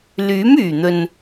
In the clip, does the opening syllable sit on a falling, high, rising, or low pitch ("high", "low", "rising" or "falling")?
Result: rising